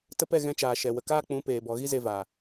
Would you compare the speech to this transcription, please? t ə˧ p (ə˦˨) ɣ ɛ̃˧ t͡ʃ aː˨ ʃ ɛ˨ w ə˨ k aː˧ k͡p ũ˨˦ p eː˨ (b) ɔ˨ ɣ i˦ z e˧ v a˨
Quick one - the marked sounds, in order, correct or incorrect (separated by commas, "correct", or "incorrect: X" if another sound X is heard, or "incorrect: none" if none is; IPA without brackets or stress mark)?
incorrect: ɛ˦˨, correct